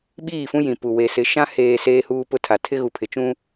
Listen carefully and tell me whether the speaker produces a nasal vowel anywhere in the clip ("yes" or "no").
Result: yes